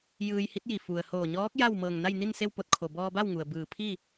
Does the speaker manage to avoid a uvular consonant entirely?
yes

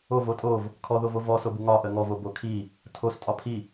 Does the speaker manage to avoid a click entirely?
yes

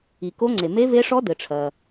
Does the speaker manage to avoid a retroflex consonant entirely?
no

